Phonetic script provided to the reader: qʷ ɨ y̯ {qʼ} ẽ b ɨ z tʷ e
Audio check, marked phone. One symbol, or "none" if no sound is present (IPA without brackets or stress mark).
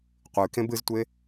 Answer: k